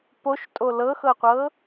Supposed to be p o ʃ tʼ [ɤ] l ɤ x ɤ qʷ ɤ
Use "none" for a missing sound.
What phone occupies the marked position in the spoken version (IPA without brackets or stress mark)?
o